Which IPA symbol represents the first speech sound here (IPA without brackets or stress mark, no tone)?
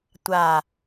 tʷ